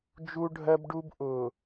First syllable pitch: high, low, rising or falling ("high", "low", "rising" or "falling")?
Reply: high